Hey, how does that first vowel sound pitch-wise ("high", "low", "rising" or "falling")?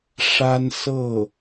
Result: high